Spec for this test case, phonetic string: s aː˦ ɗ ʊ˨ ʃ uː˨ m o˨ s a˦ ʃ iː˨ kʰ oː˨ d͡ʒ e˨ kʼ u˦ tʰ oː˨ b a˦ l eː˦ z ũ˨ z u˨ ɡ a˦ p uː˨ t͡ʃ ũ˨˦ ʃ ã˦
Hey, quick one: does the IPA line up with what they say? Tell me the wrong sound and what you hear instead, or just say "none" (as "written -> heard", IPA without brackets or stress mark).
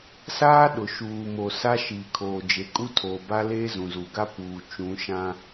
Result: none